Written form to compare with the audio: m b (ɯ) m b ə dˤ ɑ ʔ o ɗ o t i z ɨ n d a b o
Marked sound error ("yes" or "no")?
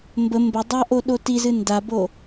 yes